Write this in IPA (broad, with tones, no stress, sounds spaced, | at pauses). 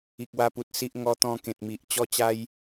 i˨ k̚ w a˧ p u˨ t̚ s i˦ ʔ ŋ ɔ˧ t̪ ɔ̃˧ k ẽ˨ t̚ m i˨ ʔ t͡ɕ ɔ˦ t͡ɕ a˦ j